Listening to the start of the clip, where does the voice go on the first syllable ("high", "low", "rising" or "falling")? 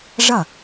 falling